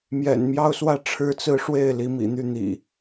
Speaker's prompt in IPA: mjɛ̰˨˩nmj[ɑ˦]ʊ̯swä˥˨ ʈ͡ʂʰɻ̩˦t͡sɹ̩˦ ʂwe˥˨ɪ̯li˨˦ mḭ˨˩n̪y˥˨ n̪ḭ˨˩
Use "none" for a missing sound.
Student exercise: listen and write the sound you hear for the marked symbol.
ɑ˦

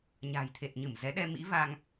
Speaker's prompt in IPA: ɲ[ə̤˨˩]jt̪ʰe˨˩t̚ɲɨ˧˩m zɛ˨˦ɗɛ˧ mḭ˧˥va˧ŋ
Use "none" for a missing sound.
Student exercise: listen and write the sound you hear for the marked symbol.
a̤˨˩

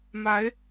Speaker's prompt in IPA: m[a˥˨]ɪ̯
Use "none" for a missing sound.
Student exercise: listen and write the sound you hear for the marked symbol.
a˨˦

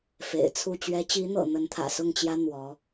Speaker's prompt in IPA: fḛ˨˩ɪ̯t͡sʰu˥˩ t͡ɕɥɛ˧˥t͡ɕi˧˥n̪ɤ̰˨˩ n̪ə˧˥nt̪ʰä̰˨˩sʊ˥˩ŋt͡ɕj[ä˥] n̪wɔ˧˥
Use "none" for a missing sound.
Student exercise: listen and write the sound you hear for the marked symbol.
ä˥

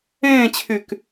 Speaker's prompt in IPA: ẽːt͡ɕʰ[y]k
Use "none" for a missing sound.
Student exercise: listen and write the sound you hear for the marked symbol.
y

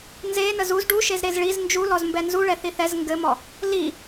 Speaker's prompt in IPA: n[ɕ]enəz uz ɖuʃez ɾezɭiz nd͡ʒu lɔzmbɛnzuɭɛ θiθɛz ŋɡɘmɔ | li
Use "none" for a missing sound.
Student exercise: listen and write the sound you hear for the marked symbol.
z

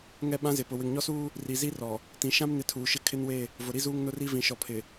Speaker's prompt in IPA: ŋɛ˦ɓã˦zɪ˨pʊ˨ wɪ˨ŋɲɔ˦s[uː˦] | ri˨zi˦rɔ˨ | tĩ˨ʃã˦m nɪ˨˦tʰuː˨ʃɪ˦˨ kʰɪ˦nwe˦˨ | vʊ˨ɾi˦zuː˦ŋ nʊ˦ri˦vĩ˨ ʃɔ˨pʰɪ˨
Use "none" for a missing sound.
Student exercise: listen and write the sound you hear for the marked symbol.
uː˦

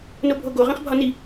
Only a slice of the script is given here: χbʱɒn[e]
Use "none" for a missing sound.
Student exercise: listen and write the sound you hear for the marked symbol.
i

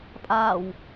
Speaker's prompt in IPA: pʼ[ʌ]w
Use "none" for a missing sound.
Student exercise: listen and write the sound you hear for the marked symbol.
a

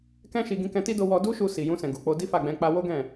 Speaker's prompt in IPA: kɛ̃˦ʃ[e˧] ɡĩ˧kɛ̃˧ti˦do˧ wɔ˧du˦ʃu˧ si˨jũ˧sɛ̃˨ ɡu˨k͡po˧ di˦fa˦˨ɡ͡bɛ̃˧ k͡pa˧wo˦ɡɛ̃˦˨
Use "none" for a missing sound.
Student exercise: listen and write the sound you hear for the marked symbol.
i˧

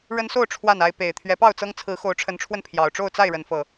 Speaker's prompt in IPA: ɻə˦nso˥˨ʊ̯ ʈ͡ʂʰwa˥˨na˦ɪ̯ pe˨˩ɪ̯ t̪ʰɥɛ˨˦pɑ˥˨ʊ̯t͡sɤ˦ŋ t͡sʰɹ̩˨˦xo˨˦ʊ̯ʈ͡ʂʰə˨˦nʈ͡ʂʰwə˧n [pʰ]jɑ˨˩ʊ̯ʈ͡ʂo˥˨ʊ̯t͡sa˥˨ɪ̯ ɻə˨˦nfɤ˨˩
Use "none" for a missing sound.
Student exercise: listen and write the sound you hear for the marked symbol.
pʰ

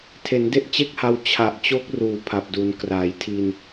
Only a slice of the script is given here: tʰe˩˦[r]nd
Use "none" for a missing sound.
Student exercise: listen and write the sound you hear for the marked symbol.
none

